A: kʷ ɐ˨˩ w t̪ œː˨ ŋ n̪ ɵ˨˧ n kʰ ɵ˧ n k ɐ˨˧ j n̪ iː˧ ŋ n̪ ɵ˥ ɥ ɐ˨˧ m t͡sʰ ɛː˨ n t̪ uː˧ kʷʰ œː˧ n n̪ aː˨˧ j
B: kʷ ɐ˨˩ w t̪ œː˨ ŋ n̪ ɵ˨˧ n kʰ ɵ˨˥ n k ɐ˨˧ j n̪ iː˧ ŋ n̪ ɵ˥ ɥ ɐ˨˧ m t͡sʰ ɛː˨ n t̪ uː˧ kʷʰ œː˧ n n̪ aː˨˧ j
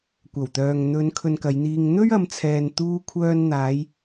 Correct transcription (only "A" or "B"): A